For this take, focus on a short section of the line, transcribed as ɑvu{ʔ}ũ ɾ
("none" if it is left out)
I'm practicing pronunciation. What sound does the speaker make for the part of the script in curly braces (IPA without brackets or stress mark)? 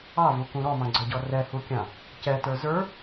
k